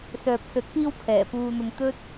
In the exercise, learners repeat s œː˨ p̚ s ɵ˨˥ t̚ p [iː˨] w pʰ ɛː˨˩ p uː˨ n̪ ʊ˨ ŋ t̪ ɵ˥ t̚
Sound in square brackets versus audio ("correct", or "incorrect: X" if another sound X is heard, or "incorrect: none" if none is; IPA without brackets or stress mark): incorrect: iː˧